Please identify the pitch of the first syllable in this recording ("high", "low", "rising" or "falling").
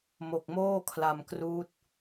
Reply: low